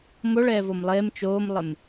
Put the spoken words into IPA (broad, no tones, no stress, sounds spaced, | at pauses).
m o ɭ ɛː v o m lˠ eː m t͡ʃ oː m lˠ ɪ m